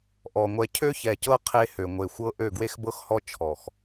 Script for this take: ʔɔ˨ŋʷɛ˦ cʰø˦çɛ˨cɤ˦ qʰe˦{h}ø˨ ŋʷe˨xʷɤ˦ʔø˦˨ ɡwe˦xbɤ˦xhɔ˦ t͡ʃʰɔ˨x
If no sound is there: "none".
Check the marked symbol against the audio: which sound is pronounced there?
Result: h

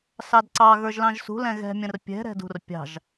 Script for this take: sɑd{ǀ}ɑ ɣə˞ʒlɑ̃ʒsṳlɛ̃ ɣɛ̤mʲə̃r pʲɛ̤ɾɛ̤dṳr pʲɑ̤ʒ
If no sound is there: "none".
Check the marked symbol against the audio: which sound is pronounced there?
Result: ǀ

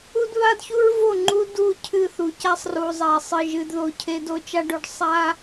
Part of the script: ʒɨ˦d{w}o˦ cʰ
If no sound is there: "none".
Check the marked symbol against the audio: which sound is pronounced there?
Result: ð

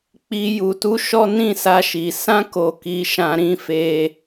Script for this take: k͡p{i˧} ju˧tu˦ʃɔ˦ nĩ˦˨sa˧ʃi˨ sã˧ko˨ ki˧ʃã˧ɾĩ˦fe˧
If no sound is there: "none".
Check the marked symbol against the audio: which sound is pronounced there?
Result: i˧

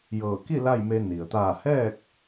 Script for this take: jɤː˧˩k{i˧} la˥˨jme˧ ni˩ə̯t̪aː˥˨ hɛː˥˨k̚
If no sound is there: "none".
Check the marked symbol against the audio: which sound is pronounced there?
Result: i˥˨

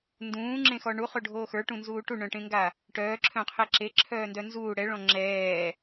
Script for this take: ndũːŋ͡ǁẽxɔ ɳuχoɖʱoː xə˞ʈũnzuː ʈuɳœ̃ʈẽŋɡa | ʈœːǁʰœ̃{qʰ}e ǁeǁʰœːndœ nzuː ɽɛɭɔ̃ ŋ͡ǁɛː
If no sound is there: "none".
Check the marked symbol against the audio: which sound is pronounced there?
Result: qʰ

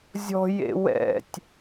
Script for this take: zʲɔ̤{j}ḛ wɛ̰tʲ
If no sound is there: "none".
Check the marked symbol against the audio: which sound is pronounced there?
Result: j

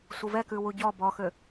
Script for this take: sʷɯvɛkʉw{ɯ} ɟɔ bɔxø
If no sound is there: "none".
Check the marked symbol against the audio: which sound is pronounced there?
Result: u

